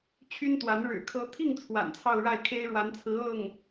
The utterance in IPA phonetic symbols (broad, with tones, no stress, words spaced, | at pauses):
t͡ɕʰy˥nt̪wa˧˥n ɻɻ̩˨˩ kʰɤ˧˥t̪ʰi˥˩ŋ t͡sʰwa̰˨˩nt͡sʰɑ˥˧ʊ̯ɻa˥˩ɪ̯ kʰe˥ɪ̯ɻwa˧˥nt͡sʰɹ̩˧˥ ɤ˥˩ŋ